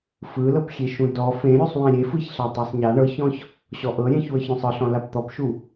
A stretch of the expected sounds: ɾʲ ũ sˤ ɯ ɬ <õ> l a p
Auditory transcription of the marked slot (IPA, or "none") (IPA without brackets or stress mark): ɔ̃